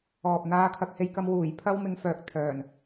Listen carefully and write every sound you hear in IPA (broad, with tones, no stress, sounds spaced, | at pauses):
ɔː˨ p̚ n̪ aː˧ kʰ ɐ˧ k̚ h e˧ j k ɐ˧ m w uː˨˩ j pʰ ɐ˧ w m ɪ˨˧ ŋ f œː˨ k̚ t̪ʰ œː˨˩ n